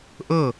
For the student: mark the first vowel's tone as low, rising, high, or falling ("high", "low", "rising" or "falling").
falling